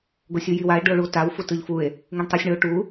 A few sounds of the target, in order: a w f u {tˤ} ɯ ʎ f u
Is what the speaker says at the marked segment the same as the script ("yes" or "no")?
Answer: no